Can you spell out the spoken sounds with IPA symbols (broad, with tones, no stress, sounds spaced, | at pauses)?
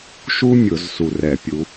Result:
ʃ u˥ mʲ ʊ˧˩˧ z s u˧˩ r ɛ˧˩˧ pʲ u˨˦